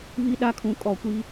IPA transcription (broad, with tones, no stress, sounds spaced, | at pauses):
β i˦ ɗ a˦ kʰ ũ˨ kʼ ɔ˨ kʷ i˦